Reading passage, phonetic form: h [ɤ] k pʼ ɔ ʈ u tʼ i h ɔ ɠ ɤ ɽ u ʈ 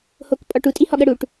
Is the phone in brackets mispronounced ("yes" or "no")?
yes